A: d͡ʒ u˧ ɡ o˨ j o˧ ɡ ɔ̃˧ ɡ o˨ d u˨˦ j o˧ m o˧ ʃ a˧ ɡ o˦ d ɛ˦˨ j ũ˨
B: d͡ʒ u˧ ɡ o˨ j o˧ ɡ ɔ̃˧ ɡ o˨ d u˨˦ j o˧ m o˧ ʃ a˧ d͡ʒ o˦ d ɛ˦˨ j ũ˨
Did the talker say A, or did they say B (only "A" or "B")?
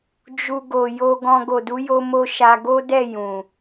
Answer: A